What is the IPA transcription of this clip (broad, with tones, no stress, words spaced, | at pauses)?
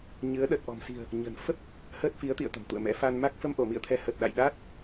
ɲɨ˨˦ə̯ɗə˨˩t̚ ʔɔ̤˨˩msi̤˨˩ə̯ | ɲə̤˨˩n fə˦˥p̚ | həː˦˥t̚fi˨˦ə̯t̪ḭ˧˨ə̯ t̪ə̤˨˩mt̪ṵ˧˨ə̯mɛ̰˧˥ fa˧nma˦˥k̚ fə˧mʔo˧˩mḭ˧˨ə̯t̪ʰɛ˨˦ hə˨˩t̚ɗa̰˧˨jɗaː˦˥t̚